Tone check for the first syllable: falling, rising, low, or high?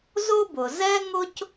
high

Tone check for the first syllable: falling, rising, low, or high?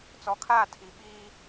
low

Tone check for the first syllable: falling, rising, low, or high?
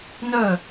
falling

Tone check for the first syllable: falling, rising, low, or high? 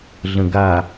low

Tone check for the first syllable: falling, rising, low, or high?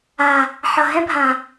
low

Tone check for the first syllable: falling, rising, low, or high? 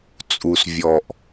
low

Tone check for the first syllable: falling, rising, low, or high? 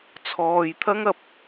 low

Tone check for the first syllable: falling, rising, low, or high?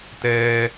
high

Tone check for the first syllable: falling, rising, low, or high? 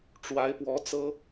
rising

